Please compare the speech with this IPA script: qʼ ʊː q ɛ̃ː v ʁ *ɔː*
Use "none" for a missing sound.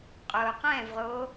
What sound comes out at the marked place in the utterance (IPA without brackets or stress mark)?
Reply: oː